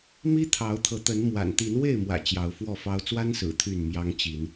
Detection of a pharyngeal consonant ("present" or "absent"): absent